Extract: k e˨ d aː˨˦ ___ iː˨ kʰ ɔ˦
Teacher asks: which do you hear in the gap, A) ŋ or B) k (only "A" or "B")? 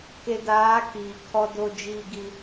B